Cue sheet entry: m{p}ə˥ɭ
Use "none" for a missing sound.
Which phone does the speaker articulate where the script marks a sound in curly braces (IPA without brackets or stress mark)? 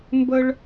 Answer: b